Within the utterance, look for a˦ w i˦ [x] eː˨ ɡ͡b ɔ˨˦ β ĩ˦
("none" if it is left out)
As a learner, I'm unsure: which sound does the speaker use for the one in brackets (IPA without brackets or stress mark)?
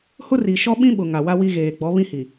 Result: ɣ